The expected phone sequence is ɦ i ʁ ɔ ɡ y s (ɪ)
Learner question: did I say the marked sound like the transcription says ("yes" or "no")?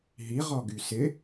yes